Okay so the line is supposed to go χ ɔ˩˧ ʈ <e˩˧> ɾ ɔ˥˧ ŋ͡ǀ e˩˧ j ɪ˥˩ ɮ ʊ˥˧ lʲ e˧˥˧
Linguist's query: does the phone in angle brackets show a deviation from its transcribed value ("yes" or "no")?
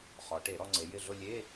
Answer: yes